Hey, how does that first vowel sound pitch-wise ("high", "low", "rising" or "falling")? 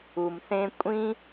low